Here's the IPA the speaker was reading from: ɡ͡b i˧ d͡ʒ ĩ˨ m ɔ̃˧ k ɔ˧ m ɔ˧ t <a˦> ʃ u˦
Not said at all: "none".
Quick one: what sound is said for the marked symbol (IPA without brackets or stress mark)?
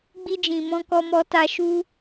a˧